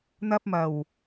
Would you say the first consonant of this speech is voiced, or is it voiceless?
voiced